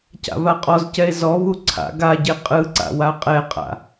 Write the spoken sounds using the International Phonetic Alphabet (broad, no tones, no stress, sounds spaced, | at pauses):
c a̰ v a qʼ ɔ z c ɛ e̯ z ɔ v u ǀʰ a̰ ɡ a ɟ e qʼ ɯ ǀ a̰ w a qʼ ɛ qʼ a̰